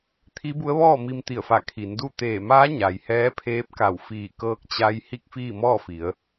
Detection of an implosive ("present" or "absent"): absent